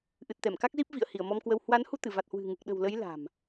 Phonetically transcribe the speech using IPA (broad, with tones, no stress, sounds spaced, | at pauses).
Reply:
ʔ ɨ˨˩ t̚ t̪ ɛ˧˩ m k a˦˥ k̚ z i˦˥ p̚ v ḭ˧˨ ə̯ h i˧˩ ə̯ m ɔ˧ m k w ə˧ w h w a˨˦ n h u˧ t̪ ɨ˧˩ v a˨˩ t̚ h w ɨ̤˨˩ ŋ ɨ˨˩ k̚ ɗ ə̤˨˩ w l ə˨˦ j l a̤˨˩ m